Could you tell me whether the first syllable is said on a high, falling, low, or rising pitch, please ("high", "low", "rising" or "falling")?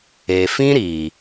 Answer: low